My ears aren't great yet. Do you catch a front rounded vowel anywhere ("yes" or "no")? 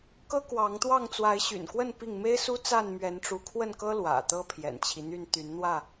yes